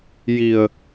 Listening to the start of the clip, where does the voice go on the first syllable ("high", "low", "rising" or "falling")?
low